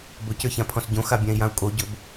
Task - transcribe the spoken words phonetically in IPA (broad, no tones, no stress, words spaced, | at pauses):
bɵcə˞çãpʰɔ̃s ɟõxabʲãi̯jãu̯ kʼoɟɵb